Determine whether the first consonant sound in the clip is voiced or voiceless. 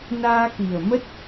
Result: voiced